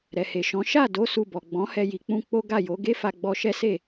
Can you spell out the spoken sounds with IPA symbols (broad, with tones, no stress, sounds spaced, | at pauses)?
ɾ ɛ˨ h e˨ ʃ ɔ̃˨˦ ʃ a˦˨ d o˨˦ s u˧ b ɔ˨ ɡ͡b ɔ̃˨˦ h ɛ˧ j i˨ k͡p ũ˧ k͡p o˦ ɡ a˦˨ j o˨˦ ɡ e˦ f a˧ ɡ͡b ɔ˧ ʃ ɛ˦ s e˦˨